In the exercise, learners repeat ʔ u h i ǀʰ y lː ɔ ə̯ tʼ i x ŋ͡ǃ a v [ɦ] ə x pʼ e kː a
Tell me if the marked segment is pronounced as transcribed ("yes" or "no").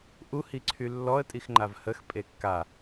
no